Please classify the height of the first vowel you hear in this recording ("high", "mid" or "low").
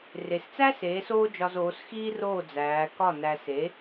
mid